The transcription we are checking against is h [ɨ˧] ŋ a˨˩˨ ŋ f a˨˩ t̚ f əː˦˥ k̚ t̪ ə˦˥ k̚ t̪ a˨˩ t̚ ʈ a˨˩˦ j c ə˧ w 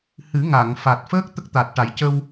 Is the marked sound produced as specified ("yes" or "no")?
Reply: no